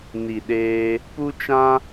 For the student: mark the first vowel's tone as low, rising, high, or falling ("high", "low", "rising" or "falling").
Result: low